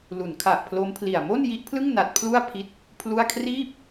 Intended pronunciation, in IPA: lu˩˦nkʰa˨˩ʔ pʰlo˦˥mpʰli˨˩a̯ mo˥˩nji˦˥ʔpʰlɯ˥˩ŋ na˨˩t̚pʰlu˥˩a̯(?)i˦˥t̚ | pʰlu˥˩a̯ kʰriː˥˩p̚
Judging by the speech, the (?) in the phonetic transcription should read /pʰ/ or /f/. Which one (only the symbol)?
pʰ